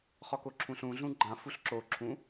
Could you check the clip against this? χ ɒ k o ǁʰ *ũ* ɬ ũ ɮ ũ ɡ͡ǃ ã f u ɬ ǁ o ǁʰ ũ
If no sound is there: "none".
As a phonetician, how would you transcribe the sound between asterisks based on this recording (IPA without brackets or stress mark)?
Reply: ũ